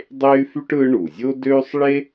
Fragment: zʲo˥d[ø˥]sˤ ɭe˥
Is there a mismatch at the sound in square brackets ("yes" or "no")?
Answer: no